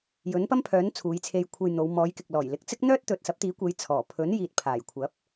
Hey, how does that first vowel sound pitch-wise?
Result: rising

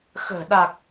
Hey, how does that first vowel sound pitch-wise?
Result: low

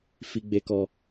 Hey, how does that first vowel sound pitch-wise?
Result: high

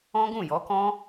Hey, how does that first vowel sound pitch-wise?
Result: high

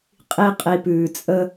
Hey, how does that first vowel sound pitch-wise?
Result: high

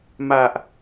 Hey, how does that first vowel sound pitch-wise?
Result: low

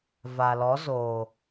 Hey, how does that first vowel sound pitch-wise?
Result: low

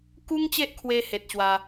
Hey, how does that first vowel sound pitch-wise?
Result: high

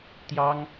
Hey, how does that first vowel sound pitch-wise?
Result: high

